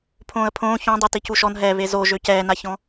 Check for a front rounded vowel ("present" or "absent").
present